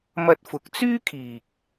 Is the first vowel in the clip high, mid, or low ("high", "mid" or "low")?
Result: low